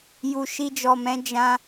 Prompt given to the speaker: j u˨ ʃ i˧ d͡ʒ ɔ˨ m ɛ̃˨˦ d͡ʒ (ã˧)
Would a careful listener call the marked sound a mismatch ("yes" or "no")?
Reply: no